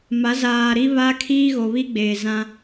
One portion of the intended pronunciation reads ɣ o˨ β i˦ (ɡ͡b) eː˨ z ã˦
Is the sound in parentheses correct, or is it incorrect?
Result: correct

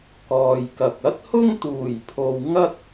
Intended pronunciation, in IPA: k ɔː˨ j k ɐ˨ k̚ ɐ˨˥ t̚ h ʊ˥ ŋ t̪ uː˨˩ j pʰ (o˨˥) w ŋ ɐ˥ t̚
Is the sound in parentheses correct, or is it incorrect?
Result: incorrect: o˨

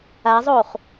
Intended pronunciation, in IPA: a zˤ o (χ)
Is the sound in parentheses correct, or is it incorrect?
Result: correct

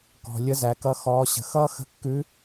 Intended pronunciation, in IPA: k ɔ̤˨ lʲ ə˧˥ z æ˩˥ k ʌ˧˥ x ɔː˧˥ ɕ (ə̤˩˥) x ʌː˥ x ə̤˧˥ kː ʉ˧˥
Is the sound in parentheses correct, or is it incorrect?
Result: correct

